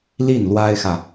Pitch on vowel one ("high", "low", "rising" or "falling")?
falling